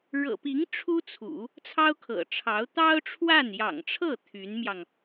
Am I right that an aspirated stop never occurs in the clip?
no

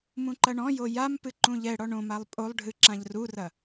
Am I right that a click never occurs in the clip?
no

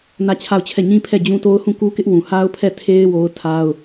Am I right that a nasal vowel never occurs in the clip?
no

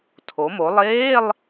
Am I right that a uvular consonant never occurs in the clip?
yes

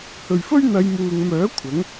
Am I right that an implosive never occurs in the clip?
yes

